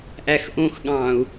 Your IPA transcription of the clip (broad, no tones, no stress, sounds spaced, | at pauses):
ʔ æ x ʔ õ x ɠ ɑ̃ː u̯